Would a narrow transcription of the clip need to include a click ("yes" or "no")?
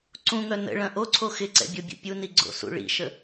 yes